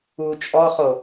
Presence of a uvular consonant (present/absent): present